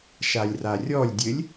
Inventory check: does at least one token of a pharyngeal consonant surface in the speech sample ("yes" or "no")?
no